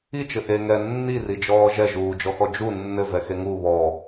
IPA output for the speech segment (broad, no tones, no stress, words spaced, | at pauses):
it͡ʃɘ ʔe ŋɛ nːirid͡ʒɔː ʒɛʒuːd͡ʒɔxɔ d͡ʒu nːɘvɛxe ŋu βɔ